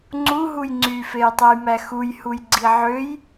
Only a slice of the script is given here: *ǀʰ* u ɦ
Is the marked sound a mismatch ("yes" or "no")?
yes